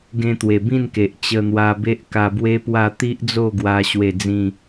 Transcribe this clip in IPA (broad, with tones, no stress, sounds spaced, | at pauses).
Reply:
ɡ ẽ˧ t̪ w e˨˩ b ĩ˥˧ n k e˨ ʔ t͡ɕ ə˧ n̪ w a˧ b e˦ ʔ k a˧ b w e˦ p w a˥˧ t̪ i˦ ʔ d͡z o˥˧ ɡ w a˧ ɕ w e˥˧ d͡z ĩ˥˧